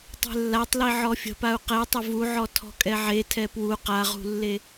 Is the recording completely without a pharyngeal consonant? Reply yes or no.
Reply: no